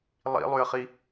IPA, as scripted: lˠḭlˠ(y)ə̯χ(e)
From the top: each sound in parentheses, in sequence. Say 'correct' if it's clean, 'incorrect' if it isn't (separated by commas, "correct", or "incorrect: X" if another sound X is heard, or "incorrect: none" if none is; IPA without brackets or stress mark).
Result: correct, incorrect: i